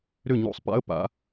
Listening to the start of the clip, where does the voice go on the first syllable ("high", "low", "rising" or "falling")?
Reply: falling